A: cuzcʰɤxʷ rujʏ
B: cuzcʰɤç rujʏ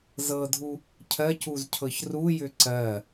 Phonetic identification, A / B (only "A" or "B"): B